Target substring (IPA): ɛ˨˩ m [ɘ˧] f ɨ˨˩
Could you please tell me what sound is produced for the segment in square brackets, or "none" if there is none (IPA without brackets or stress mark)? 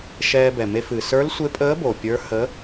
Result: e˧